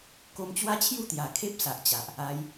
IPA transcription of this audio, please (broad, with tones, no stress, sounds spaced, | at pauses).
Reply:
k o˧ m t͡ɕ w a˦ t͡ɕʰ j u˥˧ t̪ j a˨˩ kʰ e˦ p̚ s a˨ ʔ t͡ɕ a˨ ʔ | a˧ j